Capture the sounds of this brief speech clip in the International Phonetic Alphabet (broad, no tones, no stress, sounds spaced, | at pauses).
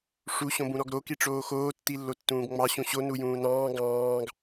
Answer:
ʂ u ɕ õ b ũ ɾ ɔ ɡ ɾ o k i ʈ͡ʂ oː x oː tː i lː o tː ũː ɡ ŋ͡m ɑ ɕ ũ ɕ o n u j ũː n ɑ̃ː ɡ ɑ̃ː ɡ